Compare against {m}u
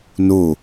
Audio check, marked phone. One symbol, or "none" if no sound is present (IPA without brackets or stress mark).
n